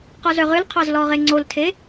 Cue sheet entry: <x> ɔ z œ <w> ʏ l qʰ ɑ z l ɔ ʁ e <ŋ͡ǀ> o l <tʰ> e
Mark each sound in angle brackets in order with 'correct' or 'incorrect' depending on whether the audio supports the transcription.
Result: incorrect, incorrect, correct, correct

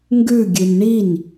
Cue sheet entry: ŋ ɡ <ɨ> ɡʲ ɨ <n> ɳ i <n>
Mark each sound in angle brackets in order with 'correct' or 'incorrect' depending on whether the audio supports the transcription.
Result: incorrect, correct, correct

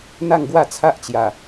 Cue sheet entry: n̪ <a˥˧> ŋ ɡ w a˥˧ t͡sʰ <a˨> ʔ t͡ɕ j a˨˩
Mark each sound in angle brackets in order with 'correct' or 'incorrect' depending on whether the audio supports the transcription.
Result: correct, incorrect

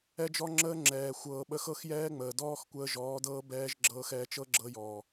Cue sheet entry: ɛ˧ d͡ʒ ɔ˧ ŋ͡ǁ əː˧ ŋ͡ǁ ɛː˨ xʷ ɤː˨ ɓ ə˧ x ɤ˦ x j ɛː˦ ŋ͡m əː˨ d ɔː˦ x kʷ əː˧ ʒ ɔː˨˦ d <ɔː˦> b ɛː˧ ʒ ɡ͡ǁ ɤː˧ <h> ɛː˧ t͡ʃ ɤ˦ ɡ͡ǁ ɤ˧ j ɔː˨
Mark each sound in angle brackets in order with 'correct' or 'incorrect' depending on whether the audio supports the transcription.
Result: incorrect, incorrect

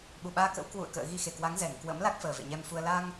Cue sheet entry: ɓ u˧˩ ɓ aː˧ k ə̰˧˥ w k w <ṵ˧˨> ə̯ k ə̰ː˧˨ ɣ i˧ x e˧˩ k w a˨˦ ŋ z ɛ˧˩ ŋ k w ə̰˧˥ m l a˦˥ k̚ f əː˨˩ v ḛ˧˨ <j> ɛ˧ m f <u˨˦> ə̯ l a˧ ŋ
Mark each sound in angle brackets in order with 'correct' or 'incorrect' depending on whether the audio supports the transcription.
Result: correct, incorrect, incorrect

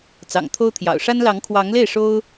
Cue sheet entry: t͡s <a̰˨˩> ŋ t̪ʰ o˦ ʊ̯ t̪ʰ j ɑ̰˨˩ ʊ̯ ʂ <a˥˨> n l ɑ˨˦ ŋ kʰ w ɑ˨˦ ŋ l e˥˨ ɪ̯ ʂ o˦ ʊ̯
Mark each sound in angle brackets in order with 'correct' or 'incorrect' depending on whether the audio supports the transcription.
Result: incorrect, incorrect

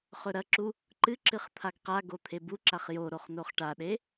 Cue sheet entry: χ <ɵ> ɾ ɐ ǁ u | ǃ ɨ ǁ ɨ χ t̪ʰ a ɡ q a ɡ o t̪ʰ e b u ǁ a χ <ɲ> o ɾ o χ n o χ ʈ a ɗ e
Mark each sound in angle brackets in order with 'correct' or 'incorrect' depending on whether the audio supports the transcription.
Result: correct, incorrect

